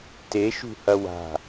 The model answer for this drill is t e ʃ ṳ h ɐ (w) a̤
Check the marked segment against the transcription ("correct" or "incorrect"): correct